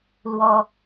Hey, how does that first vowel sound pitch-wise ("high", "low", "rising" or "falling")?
high